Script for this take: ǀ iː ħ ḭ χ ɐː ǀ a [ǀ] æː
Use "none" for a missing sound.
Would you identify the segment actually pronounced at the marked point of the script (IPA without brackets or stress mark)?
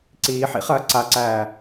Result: ǀ